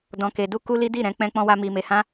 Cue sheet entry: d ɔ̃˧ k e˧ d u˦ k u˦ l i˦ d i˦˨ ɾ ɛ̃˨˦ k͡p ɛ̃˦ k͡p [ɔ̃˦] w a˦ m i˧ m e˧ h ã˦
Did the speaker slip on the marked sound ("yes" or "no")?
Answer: no